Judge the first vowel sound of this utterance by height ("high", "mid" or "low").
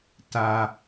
low